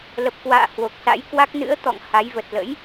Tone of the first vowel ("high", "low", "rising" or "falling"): low